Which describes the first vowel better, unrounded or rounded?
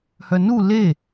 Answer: rounded